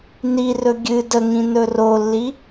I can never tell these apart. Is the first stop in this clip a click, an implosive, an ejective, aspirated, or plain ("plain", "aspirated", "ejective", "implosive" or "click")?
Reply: plain